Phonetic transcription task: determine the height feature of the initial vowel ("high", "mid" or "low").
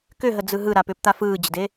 high